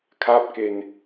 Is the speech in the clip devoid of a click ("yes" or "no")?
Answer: yes